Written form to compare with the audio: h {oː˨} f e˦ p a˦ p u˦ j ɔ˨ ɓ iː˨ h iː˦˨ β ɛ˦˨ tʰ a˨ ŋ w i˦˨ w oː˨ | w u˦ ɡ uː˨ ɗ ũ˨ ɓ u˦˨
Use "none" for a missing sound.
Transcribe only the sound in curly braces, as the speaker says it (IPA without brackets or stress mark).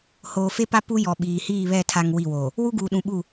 oː˨